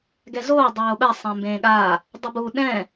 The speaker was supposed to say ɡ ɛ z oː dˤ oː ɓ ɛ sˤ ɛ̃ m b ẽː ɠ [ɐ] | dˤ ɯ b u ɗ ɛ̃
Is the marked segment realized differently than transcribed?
yes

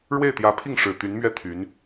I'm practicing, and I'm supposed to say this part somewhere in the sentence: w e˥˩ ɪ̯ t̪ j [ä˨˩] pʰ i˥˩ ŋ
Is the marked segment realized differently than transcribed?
yes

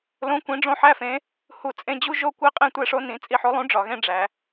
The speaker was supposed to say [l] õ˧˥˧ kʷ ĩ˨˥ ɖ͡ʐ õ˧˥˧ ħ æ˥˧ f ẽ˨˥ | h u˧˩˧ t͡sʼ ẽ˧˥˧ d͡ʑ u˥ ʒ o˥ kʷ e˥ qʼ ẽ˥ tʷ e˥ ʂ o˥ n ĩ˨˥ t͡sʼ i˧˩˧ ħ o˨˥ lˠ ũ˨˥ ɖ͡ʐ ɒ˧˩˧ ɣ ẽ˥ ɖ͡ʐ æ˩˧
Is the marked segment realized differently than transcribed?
no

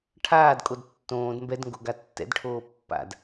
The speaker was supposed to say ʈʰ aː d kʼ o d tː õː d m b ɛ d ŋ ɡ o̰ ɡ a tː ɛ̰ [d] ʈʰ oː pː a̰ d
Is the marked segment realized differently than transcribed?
no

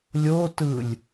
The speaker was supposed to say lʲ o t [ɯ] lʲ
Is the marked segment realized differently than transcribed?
no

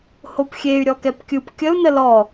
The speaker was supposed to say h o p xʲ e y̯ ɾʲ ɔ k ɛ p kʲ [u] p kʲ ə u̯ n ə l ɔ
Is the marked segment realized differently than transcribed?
yes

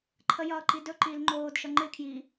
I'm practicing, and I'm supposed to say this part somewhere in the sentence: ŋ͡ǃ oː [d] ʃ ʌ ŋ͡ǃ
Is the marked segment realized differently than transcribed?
no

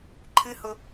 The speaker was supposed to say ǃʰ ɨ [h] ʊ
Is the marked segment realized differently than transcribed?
no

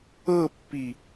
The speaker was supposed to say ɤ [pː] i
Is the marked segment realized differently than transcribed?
no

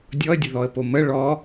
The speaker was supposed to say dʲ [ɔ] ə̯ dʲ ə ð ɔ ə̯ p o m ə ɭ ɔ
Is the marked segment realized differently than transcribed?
no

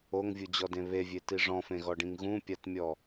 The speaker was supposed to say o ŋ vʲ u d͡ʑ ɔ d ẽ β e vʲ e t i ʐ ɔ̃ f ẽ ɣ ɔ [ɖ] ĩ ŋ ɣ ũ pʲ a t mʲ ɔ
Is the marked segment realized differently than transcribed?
no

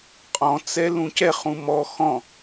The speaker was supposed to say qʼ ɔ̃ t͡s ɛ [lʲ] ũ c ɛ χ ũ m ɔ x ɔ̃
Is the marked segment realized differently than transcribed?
yes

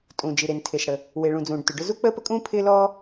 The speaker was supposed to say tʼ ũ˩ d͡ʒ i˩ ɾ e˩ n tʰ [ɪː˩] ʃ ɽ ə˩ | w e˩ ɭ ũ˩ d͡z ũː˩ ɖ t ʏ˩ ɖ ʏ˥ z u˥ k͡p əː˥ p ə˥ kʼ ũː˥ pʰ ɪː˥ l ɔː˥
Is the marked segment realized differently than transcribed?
no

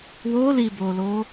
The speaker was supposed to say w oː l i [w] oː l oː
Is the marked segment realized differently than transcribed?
yes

